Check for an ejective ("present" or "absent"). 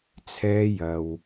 absent